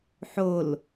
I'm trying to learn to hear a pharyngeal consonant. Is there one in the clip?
yes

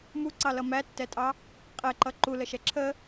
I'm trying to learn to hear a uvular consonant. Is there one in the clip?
yes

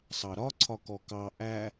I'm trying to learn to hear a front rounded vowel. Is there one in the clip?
no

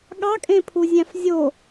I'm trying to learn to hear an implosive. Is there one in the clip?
yes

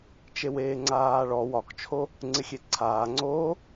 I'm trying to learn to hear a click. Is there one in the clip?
yes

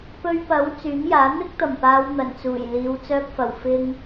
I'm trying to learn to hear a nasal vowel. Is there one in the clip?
no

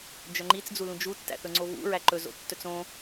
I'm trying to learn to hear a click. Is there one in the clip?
yes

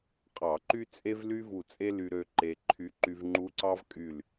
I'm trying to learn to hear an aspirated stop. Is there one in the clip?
yes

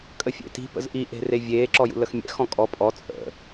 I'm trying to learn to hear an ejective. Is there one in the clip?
yes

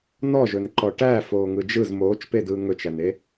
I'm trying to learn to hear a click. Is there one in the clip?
yes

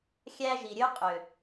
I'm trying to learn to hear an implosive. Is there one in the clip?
no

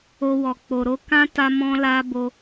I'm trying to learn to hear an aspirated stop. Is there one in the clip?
no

